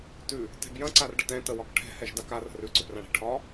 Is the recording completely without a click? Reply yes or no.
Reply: no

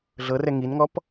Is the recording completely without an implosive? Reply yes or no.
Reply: yes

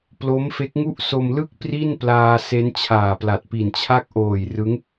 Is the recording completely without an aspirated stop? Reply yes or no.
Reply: no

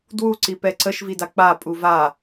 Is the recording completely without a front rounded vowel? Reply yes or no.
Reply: yes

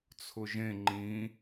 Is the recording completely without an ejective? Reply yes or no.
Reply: yes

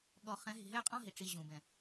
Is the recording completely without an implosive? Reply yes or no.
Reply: no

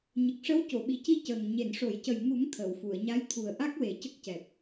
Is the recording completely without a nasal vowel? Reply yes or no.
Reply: yes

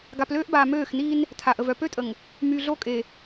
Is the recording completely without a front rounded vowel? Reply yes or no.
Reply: no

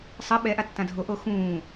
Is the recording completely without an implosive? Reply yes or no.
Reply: no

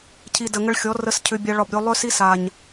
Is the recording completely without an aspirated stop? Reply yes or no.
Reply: no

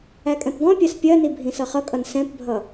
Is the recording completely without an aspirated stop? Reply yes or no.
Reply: yes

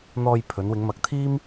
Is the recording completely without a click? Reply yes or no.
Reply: yes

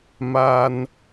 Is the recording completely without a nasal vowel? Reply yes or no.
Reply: yes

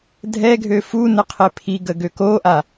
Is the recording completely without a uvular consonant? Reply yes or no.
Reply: no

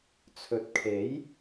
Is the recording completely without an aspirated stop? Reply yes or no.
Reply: no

